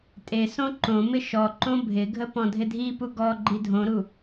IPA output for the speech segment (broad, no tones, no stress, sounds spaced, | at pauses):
tʼ e s õ ǃ õ m ɪ ʃ ɔ ǃ õ bʱ ɪ ɡʱ ə p ɔ̃ dʱ ɪ dʱ i p u ɡ ɔ ɡ͡ǃ i dʱ õ ɾ u